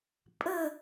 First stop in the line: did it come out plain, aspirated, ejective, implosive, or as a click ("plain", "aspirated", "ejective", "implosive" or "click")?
ejective